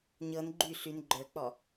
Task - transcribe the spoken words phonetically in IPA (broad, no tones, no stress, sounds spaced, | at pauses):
ɲ ɤ n ɡ͡ǃ y ɬ y n ɡ͡ǃ ə˞ k͡p ɔ